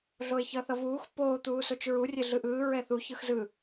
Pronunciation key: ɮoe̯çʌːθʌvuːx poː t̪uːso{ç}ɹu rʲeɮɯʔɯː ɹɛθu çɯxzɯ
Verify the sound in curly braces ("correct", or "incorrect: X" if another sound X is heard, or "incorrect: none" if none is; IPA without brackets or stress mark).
incorrect: t͡ʃ